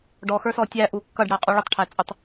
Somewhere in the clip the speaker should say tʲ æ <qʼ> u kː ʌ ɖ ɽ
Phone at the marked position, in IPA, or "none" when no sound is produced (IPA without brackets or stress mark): ʔ